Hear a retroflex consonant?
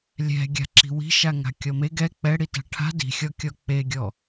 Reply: yes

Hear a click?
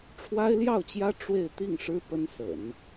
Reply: no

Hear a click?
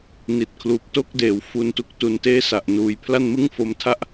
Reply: no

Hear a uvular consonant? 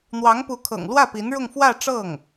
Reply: no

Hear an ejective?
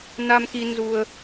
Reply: no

